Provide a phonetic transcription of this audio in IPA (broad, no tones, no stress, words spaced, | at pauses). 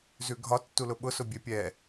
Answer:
zʉɡʱɒ tːulʊɓʊ sʊbʲepʲɛ